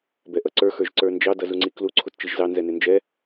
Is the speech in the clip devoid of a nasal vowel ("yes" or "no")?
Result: yes